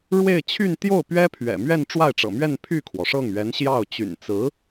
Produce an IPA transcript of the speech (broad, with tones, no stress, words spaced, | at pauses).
ɻwe˥˧ɪ̯ t͡ɕʰy˥˧nt̪jo˥˩ʊ̯ pɥɛ˥pʰɥɛ̰˨˩ mɥɛ˥˧nʈ͡ʂwa˥˩ɪ̯ʈ͡ʂɤ̰˨˩mɥɛ˥˧n pʰy˥˩kʰwɔ˩ʂɤ˥˩ŋ ɥɛ˧˥nɕjɑ˥˩ʊ̯ t͡ɕy̰˨˩nt͡sɹ̩˧˥